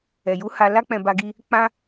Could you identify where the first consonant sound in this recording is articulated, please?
palatal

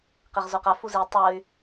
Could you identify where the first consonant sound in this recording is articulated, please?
uvular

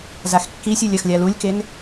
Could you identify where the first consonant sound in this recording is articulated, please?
alveolar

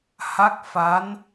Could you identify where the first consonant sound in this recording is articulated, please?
glottal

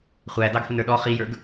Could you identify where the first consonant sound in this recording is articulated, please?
uvular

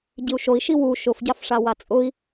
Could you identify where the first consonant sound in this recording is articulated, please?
palatal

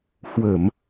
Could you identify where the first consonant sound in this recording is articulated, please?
glottal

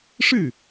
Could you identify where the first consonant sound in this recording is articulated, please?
retroflex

